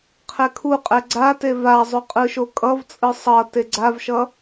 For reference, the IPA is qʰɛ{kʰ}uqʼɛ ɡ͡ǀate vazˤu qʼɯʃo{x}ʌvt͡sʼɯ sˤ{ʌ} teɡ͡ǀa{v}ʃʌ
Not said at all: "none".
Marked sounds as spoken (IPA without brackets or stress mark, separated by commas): kʰ, kʼ, ʌ, v